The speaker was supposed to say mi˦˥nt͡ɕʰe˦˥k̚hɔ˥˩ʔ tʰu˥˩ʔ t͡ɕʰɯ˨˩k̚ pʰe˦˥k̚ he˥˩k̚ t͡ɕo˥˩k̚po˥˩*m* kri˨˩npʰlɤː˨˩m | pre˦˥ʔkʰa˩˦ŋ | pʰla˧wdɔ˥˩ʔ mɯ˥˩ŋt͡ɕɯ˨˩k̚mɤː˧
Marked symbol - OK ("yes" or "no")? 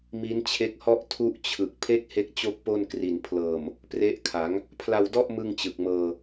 no